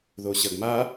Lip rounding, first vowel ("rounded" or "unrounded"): rounded